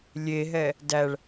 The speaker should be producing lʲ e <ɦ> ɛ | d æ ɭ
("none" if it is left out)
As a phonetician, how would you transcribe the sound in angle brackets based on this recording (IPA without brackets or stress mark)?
ɦ